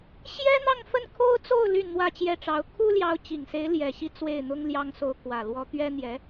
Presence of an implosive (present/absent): absent